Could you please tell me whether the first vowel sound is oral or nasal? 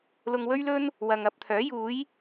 oral